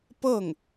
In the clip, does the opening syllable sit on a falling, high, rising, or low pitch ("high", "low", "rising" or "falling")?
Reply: falling